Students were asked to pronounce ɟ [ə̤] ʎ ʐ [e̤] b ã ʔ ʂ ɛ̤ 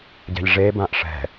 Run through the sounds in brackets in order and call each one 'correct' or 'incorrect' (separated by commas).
incorrect, incorrect